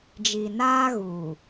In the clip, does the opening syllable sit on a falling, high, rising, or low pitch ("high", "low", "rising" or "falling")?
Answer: low